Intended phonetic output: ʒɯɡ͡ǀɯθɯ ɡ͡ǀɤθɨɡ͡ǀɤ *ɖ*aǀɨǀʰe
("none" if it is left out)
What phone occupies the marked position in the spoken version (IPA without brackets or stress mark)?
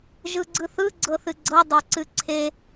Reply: dˤ